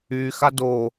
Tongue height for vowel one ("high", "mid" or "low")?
high